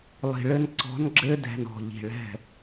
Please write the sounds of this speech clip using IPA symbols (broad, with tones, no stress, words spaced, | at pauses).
lˠi̤˨ɭɘ˧n ǀɔ̤˨˦nɡ͡ǁɘ˧dɛ̤˨n ɔ̤˨ʎi̤˨ ɭɛ̤˦˨